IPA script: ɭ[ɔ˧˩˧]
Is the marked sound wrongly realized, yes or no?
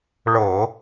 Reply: yes